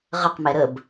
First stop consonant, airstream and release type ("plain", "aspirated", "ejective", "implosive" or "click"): plain